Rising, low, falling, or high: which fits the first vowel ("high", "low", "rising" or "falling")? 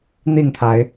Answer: falling